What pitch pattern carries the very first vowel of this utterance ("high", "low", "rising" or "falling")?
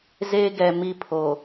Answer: high